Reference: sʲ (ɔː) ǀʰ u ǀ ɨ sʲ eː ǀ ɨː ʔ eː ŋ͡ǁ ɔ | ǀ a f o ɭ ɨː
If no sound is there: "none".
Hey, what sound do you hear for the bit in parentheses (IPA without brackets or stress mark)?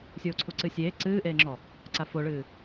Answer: oː